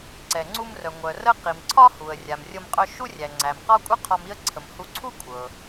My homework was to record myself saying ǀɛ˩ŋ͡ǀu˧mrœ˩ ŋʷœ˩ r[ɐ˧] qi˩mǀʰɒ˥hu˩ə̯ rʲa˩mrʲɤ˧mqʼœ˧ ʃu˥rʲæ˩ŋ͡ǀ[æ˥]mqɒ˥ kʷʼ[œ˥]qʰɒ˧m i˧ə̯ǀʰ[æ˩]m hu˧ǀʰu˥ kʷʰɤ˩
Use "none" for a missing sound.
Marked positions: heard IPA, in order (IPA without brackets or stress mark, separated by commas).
ə˧, æ˩, œ˥, ə˩